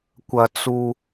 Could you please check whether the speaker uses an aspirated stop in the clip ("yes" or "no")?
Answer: no